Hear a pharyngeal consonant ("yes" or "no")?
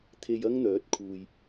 no